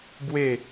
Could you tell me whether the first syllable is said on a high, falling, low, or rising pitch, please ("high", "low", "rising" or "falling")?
falling